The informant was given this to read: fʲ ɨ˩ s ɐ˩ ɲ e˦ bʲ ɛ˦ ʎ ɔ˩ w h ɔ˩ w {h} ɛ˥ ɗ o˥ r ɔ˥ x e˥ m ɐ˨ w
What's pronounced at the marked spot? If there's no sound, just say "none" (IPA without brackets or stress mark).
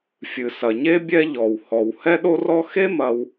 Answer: h